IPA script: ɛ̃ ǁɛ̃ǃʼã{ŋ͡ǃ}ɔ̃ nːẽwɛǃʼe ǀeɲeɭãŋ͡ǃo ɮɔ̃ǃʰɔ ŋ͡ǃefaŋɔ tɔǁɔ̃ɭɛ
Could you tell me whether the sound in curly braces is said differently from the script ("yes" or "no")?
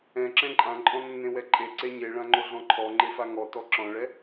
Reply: yes